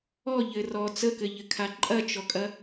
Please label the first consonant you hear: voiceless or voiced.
voiced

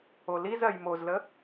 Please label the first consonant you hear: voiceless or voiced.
voiced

